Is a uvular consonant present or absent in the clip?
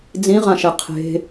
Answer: present